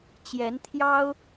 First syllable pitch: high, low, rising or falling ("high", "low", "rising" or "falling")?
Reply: rising